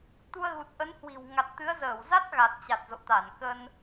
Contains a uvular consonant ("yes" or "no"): no